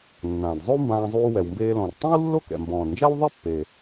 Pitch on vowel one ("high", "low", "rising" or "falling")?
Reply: low